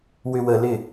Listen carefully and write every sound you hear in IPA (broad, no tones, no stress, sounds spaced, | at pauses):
w ʏ w ə l ɪ